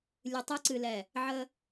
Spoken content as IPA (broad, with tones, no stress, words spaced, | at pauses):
lʲɨ˨tˤɨ˦ ǀɨ˨lɛ˨ | ʕə˦